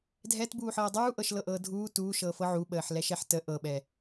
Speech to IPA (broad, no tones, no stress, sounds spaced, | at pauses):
dʱ ɛ t b uː ħ ɤː dˤ uː ʔ ɤ ʃ l ɤ ʔ ɤː dʱ uː t uː ʃ ɤː f ɤ ʕ u ɓ əː ħ l ɛ ʃ ɛ ħ t ə ʔ ɤ ɓ ɛ